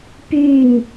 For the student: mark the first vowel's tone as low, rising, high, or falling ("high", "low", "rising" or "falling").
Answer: falling